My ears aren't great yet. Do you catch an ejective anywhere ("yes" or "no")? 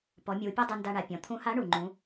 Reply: no